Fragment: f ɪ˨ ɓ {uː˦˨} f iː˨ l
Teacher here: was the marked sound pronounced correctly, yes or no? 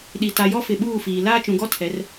yes